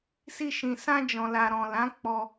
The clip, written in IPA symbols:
s i˧ ʃ ĩ˨ s ã˧ d͡ʒ ɔ̃˨ l a˨ ɾ ɔ̃˨ l ã˨˦ k͡p ɔ˧

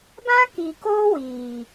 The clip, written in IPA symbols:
b ã˦ k i˨ k oː˦ w iː˨

